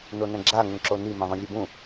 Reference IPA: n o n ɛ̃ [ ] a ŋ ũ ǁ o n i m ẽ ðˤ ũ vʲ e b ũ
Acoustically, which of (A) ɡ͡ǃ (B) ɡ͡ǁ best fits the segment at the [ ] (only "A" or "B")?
B